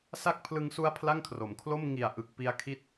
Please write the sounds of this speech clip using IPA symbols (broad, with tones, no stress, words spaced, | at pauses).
sa˦˥k̚pʰlɯ˧ŋsu˦˥a̯ pʰla˥˩ŋkʰro˩˦m kʰlo˥˩m ŋi˨˩a̯ ʔɯ˨˩k̚pi˧a̯kʰi˦˥t̚